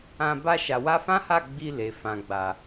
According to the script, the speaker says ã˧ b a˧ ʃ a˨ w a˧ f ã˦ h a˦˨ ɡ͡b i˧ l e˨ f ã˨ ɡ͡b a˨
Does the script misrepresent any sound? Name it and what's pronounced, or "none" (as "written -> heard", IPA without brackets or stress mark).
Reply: none